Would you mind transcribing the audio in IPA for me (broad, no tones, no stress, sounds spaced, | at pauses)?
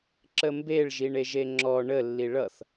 ǁ ə m b e ɭ ʒ i ɳ e ʒ e ŋ͡ǁ ɔ ɳ ə lː i ɭ ʌ θ